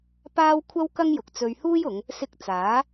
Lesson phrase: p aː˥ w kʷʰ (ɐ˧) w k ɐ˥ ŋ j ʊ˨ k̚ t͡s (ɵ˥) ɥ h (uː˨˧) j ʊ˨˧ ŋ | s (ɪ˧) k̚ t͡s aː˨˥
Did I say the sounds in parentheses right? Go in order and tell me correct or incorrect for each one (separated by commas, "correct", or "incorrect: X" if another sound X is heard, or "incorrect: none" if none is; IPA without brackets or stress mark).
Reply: incorrect: ɐ˥, incorrect: ɵ˧, incorrect: uː˥, correct